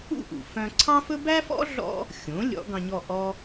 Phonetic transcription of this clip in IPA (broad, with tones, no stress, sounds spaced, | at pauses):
ṵ˥˩ ʔ ṵ˩ f œ̃˧ ǀʰ ɑ̃˥ f ɵ˥ b æ˥ f ɔ̰˥ ɮ ɔ̰˥ | xʲ õ˩˥ lʲ ɔ̰˩˥ ɡ ɑ̃˧ ɲ ɔ˥˩ ʔ ɔ˥